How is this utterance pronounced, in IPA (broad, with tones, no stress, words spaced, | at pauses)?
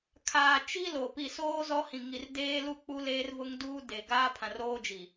kʰaː˨t͡ʃi˦ lo˨ pi˨soː˦ zɔ˦hĩ˨ŋi˨r deː˦lu˦˨k͡pu˦ leː˦rvʊ˦ŋduː˦ de˨ɡaː˦ pʰã˨roː˦d͡ʒi˨